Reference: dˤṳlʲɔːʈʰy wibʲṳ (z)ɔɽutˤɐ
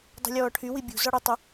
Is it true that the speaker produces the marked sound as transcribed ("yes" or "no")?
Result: yes